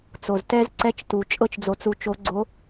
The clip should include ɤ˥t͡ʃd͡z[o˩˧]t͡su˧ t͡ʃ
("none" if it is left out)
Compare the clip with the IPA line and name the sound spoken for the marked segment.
o˧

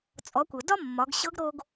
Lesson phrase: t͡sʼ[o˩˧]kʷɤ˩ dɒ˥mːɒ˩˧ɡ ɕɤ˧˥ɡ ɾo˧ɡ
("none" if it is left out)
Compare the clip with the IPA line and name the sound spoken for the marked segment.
ɔ˩˧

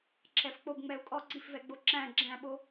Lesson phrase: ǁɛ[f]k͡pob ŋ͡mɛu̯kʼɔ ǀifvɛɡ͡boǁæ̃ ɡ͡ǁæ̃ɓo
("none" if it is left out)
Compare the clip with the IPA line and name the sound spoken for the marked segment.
f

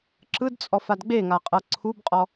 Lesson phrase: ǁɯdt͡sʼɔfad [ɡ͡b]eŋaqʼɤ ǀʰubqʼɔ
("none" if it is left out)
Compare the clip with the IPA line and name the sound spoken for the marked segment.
ɡ͡b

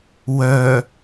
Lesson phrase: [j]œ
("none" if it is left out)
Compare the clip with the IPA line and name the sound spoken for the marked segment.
w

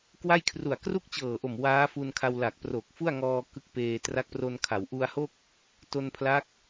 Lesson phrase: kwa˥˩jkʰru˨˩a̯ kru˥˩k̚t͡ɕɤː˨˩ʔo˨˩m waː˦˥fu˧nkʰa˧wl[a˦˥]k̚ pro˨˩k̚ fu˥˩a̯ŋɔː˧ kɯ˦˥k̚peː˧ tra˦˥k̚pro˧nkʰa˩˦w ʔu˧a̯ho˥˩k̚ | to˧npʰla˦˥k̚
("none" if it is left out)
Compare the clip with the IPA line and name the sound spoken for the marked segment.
a˨˩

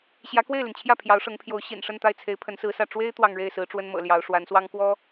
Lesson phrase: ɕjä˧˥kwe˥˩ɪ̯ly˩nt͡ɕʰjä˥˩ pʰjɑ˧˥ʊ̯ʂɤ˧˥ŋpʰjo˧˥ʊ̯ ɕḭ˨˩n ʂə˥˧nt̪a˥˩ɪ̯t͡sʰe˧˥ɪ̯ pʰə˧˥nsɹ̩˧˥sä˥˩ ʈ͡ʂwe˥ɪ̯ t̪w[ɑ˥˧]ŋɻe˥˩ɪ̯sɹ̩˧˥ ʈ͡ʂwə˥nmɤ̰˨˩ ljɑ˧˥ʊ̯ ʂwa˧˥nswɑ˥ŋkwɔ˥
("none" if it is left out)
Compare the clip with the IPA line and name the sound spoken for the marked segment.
ɑ˥˧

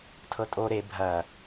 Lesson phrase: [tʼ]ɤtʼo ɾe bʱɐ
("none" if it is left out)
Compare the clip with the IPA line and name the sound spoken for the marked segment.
tʰ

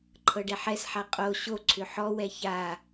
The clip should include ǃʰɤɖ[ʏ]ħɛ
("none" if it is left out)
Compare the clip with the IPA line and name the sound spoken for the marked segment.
ɛ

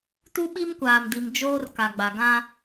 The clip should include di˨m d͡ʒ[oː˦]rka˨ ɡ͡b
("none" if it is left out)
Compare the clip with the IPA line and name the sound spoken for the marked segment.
oː˦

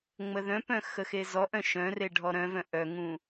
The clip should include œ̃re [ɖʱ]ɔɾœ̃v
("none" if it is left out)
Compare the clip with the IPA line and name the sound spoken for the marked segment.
ɖʱ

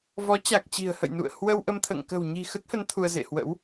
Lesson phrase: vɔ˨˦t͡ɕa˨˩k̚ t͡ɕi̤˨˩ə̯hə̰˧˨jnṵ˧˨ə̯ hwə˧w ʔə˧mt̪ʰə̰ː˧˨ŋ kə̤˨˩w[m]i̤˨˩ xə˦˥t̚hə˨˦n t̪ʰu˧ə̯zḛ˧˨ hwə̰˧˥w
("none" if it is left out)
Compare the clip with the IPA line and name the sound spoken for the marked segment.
ɲ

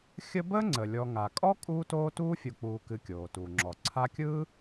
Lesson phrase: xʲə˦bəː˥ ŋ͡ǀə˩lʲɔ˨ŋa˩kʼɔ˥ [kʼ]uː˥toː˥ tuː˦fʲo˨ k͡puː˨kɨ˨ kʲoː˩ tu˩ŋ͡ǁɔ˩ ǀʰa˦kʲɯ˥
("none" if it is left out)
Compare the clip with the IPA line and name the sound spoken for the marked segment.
kʼ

